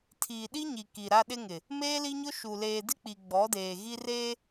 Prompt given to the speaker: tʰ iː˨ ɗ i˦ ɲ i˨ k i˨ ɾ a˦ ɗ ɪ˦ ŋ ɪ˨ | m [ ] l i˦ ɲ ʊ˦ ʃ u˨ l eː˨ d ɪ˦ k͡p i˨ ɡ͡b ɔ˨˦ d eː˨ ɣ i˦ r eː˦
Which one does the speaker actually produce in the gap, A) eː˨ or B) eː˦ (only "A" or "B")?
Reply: B